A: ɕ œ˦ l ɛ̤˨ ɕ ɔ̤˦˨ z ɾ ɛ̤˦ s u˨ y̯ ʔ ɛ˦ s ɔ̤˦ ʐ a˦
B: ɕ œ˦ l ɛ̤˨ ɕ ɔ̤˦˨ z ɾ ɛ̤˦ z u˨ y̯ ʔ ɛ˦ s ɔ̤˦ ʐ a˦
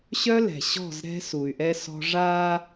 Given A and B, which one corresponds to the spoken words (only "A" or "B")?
A